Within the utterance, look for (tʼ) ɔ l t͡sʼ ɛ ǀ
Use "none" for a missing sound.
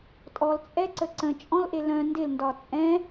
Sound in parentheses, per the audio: tʼ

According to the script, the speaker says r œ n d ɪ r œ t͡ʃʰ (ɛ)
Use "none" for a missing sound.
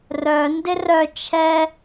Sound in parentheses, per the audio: ɛ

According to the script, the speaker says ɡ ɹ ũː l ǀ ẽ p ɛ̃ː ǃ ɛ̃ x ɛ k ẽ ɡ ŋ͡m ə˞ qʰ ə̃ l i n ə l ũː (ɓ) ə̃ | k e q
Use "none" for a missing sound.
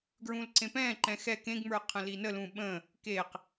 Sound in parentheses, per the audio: ɓ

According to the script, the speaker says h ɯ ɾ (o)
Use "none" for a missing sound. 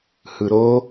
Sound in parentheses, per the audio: o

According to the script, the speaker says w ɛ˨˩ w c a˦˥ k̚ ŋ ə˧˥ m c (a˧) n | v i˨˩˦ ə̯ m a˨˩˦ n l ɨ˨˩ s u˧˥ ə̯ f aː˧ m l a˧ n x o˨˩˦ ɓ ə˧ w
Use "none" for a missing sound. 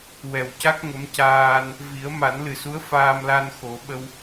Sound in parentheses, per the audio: aː˧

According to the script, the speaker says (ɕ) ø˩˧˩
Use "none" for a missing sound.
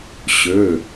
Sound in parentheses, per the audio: ɕ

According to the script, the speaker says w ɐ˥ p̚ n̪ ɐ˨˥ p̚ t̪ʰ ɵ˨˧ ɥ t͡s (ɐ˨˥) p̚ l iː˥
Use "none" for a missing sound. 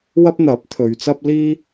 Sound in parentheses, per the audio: ɐ˥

